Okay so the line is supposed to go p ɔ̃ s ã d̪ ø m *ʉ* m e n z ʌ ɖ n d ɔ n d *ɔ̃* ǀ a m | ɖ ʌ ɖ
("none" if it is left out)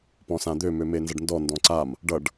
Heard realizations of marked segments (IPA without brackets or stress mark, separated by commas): ø, ɔ̃